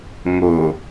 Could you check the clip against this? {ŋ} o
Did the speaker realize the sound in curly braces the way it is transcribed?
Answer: yes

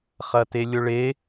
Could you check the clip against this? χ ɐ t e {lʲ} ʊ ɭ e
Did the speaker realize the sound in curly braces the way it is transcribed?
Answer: yes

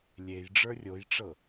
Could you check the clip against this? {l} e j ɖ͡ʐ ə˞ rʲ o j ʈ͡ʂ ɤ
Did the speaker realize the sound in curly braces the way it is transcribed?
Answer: no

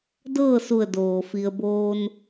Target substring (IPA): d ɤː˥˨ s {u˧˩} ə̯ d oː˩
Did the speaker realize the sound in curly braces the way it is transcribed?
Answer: yes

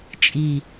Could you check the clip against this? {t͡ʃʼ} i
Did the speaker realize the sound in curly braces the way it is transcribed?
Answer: yes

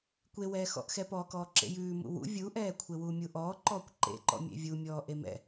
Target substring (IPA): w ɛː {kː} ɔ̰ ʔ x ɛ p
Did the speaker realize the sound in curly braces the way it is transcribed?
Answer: no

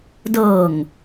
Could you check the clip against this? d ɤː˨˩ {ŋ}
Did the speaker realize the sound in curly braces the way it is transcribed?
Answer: yes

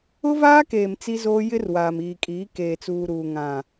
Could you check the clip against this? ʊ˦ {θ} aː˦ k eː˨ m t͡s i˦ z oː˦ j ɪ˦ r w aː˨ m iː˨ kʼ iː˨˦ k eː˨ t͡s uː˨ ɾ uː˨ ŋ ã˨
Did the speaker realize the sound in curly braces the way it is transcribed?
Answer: no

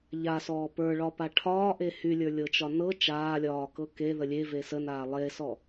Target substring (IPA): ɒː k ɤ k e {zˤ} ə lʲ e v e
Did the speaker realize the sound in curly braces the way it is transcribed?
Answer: no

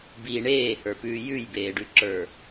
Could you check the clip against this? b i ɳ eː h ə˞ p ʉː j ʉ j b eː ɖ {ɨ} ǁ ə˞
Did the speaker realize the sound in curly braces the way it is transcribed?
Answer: no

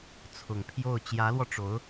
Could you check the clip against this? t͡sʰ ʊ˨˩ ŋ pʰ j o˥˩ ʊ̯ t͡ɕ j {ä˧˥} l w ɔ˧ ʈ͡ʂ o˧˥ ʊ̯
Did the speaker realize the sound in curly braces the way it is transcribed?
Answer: yes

